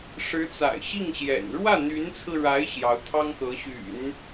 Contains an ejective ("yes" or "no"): no